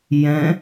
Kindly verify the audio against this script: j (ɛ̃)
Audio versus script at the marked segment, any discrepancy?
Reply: no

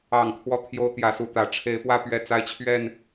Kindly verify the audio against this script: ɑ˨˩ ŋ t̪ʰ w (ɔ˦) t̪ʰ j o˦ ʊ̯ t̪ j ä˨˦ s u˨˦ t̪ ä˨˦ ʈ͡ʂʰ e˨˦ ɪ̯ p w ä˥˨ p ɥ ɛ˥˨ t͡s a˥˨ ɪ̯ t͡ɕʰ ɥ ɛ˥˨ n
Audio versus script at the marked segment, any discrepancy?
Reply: no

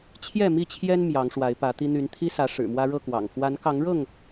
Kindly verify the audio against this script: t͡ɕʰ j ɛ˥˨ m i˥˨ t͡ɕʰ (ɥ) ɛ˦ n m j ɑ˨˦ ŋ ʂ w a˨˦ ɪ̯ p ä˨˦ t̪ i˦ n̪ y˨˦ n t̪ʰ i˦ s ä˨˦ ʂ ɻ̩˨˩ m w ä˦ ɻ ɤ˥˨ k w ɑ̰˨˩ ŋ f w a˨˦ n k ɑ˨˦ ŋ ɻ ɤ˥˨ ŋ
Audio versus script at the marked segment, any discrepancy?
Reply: yes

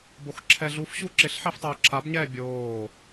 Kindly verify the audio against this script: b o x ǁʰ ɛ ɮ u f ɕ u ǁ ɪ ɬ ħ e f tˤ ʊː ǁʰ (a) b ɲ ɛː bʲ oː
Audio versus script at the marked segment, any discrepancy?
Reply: no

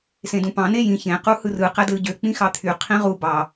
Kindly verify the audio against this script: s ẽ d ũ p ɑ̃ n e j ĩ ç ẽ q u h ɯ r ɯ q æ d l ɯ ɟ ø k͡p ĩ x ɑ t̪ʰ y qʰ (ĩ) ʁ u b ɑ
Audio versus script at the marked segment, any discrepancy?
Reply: no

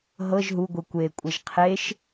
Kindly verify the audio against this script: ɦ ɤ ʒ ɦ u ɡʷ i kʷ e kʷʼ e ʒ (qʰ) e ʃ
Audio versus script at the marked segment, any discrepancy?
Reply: no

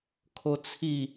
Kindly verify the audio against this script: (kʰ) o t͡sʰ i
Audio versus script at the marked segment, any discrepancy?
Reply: no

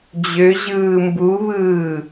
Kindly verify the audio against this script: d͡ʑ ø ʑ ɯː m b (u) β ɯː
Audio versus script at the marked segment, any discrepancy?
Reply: no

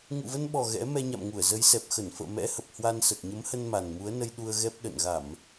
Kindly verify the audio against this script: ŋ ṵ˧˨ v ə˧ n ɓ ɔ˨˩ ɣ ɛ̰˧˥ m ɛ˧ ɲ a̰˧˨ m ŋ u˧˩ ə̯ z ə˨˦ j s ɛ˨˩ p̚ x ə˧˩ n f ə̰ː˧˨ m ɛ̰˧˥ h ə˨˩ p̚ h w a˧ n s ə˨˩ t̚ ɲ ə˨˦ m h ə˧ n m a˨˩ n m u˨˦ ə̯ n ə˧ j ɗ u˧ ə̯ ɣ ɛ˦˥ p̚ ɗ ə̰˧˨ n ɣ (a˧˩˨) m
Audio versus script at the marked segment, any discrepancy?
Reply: no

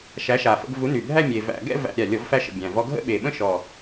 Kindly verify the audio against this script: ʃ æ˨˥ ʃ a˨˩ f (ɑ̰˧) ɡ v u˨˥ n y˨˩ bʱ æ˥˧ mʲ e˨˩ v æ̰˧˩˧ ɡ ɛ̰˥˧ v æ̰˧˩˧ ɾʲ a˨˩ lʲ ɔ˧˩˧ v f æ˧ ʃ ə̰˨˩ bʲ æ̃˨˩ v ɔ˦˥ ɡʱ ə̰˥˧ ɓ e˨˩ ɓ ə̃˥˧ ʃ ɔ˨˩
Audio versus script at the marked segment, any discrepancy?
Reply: yes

